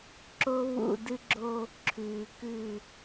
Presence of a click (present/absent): present